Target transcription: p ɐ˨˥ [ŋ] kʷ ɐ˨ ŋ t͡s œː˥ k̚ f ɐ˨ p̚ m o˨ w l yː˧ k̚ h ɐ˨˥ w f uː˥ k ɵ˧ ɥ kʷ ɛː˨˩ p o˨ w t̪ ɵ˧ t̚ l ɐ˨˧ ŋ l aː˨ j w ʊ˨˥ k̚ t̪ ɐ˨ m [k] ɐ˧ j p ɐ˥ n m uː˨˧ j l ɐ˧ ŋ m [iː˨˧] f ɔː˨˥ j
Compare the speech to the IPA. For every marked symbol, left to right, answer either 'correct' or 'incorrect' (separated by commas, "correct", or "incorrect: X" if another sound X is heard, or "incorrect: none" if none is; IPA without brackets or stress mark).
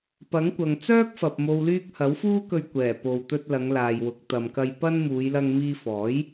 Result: correct, correct, incorrect: iː˧